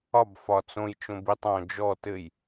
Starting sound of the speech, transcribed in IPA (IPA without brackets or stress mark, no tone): ɒ